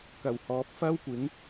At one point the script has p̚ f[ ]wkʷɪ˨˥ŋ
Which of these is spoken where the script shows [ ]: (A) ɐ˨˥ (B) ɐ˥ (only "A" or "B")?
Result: B